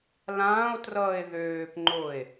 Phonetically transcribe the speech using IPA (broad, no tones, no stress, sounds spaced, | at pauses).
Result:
l ãː o̯ t r ʌː e̯ ð øː p ŋ͡ǃ o e̯